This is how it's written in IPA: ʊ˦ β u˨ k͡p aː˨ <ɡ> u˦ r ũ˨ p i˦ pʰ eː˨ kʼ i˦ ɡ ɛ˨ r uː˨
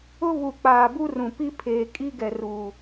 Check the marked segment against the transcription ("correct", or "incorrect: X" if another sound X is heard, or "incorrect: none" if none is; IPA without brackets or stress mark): incorrect: b